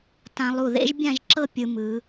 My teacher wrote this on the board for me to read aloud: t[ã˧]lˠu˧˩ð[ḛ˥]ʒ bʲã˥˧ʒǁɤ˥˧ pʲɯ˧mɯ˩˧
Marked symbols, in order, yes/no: yes, yes

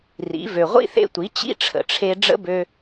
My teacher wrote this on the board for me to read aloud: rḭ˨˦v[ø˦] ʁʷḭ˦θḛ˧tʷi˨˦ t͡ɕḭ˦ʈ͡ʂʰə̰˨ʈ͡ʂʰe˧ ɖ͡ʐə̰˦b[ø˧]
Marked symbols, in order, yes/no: no, yes

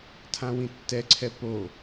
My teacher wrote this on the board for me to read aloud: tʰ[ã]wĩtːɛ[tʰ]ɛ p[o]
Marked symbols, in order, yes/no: yes, no, yes

